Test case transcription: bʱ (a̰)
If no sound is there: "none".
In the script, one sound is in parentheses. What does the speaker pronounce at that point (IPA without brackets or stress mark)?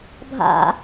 a̰